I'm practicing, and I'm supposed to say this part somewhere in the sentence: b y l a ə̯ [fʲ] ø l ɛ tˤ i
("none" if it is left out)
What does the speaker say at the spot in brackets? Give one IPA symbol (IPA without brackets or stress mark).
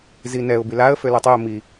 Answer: f